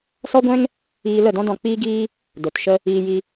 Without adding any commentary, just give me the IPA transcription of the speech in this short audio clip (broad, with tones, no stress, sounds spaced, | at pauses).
s ɔ˦ ɡʷ ɛ̃˦ ŋ | iː˧ l ə˦˨ d ɔ̃˦ d ɔ̃˧ k͡p iː˦ ɡ iː˦ | d o˨ t ʃ ə˦ | iː˧ j i˧